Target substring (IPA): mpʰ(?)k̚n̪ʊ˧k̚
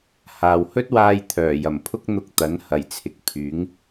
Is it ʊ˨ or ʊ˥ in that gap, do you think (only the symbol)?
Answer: ʊ˥